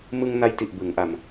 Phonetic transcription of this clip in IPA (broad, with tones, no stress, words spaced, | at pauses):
mɯ˧ŋna˧jti˨˩ʔ bɯ˩˦ŋʔa˧m